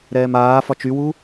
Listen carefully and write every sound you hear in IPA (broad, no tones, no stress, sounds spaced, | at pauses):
ɾ ɛː m aː f ɒ t͡ʃ y w u